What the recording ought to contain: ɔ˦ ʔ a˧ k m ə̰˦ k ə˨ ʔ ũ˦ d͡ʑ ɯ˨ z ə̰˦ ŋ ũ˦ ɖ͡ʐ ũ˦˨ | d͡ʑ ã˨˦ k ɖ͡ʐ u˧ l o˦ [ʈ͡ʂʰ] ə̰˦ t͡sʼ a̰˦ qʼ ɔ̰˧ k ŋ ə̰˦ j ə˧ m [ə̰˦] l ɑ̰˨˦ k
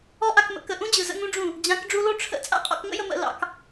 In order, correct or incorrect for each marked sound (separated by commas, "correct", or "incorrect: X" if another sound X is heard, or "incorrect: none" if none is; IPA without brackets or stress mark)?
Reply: correct, incorrect: ə̰˧